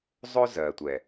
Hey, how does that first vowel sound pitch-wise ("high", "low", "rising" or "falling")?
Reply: high